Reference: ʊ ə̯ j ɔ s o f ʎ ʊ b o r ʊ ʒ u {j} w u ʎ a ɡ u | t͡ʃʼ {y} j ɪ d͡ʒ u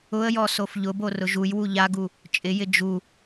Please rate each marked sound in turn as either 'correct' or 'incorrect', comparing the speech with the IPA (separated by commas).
correct, incorrect